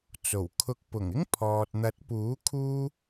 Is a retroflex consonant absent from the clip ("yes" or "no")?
yes